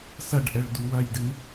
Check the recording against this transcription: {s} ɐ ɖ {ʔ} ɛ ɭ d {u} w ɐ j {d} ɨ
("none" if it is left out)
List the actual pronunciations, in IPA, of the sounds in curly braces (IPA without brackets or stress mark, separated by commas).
s, ʔ, u, d